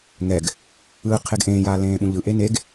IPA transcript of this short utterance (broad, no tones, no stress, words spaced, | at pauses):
ŋɛɡ | ɯːqʰeɡʔẽːjaː lẽːɓũʎɯʔe neɡ